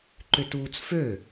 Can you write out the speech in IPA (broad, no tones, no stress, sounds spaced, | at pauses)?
ǃ ʏ t uː t͡s f ø